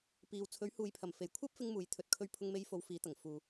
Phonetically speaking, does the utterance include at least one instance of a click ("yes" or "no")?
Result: no